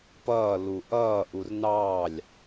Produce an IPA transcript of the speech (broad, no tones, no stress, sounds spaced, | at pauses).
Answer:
p ʌː l u ʔ ʌː ʔ u r n ɑː lʲ